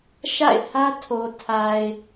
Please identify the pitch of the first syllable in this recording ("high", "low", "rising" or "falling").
falling